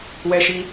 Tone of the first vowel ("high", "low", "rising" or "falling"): high